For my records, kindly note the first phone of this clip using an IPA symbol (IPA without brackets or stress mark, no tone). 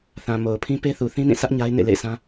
θ